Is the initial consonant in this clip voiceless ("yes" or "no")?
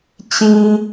yes